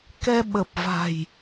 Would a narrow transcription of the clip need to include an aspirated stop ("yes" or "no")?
no